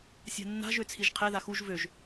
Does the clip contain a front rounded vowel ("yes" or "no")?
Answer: yes